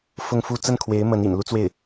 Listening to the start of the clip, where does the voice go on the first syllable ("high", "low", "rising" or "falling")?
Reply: falling